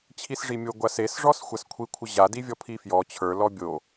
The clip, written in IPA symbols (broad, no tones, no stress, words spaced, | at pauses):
t͡ɕʰisʐimʲo ɡʷases ʐɔsxʷaskʷʰi kʷʰəʑa divʲɔpʰifjɔ t͡ɕʰə˞ lɔbʲo